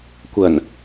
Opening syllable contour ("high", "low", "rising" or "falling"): low